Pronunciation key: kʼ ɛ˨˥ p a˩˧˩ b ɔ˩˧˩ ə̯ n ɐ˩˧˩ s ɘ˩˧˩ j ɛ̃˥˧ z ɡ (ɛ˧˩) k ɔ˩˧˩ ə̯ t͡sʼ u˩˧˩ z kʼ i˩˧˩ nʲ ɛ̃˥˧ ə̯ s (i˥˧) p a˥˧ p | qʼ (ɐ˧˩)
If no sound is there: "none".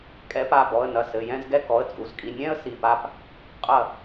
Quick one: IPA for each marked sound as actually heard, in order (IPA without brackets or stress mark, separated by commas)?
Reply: ɛ˥˧, i˧˩, ɐ˧˩